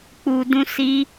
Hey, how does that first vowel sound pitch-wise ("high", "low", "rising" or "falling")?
low